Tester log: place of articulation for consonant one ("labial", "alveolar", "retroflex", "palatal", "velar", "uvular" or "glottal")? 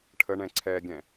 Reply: retroflex